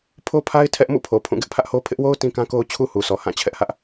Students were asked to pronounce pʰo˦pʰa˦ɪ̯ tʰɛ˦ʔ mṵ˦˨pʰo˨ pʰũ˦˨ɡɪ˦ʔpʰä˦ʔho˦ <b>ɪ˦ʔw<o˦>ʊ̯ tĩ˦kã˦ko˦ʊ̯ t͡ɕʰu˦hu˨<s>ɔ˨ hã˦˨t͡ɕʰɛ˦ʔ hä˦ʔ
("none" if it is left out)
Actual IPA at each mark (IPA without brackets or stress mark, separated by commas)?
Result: pʰ, o˦, s